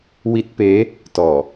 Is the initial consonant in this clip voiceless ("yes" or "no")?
no